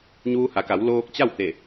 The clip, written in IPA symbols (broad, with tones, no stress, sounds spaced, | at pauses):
ɲ uː˧ h a˩˧ k a˩˧ w l oː˧ k̚ t͡ɕ a˥˨ w t̪ e˧˩